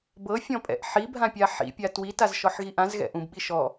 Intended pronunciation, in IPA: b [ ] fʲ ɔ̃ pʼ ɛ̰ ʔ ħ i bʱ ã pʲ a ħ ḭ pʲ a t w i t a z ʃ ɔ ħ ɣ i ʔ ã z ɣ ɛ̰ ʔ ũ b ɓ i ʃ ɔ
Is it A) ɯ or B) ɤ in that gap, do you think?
B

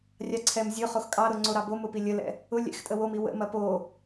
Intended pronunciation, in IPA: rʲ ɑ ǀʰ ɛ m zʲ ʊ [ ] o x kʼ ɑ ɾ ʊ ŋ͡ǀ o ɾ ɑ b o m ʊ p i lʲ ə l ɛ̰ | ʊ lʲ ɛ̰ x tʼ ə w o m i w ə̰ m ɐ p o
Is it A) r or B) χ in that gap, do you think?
B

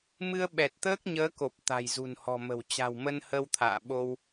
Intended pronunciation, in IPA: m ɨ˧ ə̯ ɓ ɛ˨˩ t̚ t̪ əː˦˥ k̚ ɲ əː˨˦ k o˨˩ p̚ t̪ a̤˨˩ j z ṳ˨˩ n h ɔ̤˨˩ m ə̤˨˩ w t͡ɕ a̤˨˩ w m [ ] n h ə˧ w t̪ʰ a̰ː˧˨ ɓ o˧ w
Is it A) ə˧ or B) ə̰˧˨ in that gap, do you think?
A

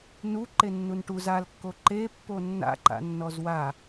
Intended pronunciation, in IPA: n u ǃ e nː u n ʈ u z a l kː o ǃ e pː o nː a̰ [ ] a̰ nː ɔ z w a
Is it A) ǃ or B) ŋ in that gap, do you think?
A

